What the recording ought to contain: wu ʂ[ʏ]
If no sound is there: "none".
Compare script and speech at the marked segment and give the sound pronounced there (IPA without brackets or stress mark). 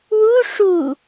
u